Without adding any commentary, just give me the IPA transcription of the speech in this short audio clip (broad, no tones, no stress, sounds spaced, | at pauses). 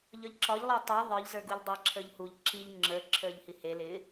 ʎ ɒ ʎ ǁ ɒ ʎ lˠ ə˞ tˤ ə˞ ðˤ ə˞ ʎ z ə˞ ɡ u ʎ dˤ e ǁʰ ə˞ ʎ h u ʎ ǁ i ʎ ŋ͡ǁ ə˞ ǁʰ ə˞ ʎ h i h e l ɪ